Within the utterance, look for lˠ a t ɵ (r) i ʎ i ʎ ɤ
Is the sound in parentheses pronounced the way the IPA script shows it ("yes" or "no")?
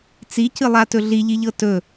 no